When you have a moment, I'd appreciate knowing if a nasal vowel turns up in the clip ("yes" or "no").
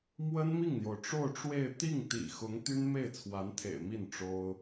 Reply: no